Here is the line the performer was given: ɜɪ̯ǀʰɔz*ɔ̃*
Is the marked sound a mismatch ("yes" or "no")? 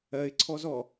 yes